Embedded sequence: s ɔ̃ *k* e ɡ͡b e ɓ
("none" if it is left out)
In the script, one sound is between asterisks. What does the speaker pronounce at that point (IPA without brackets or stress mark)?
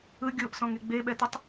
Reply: ŋ